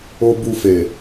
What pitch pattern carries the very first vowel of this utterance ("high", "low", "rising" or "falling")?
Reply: high